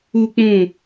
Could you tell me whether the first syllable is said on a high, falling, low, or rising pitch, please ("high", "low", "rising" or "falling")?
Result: high